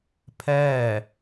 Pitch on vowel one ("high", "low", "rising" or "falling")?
falling